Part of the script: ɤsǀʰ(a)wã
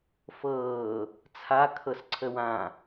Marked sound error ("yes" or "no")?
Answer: yes